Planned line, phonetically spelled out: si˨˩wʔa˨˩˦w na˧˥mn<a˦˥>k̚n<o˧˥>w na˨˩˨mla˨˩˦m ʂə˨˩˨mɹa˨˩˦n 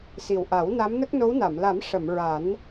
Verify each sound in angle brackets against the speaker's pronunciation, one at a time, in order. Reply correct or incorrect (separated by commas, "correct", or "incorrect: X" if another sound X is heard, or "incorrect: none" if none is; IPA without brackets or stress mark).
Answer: incorrect: ə˦˥, correct